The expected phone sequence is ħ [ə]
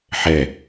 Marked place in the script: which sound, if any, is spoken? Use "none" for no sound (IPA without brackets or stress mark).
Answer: ɛ